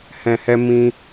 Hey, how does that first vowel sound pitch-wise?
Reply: low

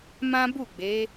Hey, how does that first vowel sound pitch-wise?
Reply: high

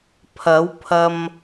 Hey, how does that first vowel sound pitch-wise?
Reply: rising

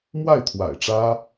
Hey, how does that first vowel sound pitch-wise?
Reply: falling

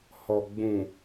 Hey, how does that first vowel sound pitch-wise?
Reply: low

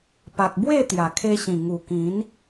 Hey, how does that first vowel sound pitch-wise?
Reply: low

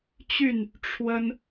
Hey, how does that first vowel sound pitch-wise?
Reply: falling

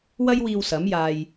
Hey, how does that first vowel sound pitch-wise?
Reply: high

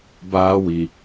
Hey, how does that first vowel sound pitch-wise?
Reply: high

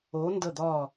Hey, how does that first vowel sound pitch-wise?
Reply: rising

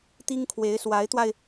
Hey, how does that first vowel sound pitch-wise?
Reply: high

